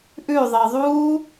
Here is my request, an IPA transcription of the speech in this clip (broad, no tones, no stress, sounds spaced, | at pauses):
ʔ ʉ ðˤ ɘ ðˤ u